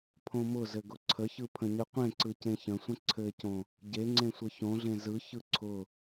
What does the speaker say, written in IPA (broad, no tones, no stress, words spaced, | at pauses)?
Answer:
pʰõmʊzɘ ɡʊǀʰəçɯ pʰə̃ɲɯqʷẽǀɯ cẽçə̃sʷə̃ ǀʰɘcõ | ɟeŋ͡ǀẽ sʷɘçõɮẽ zɯçɯ ǀʰʊ